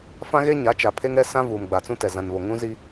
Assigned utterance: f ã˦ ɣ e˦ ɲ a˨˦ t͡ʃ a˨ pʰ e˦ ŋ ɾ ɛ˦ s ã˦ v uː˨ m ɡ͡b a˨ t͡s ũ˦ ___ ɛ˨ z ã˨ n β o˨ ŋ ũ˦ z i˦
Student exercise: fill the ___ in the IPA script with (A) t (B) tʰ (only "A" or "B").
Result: A